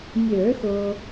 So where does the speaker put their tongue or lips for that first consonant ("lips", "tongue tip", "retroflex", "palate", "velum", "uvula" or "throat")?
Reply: lips